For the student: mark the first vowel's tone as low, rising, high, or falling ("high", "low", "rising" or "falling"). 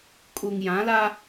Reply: low